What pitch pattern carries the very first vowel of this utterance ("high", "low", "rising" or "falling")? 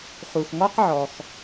low